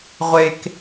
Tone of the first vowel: low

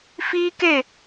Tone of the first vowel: high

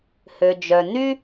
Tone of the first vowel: low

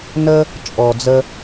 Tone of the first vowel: high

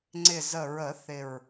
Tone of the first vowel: low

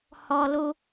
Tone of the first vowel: high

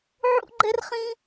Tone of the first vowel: high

